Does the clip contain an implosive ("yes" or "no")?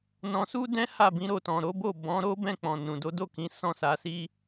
no